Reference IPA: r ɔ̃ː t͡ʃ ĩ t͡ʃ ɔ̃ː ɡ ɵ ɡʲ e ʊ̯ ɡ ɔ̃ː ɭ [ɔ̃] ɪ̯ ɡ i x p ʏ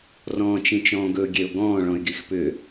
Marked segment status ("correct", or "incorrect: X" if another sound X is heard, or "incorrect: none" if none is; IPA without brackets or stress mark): correct